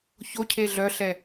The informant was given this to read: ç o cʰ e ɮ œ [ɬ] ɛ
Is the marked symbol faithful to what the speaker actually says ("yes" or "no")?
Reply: yes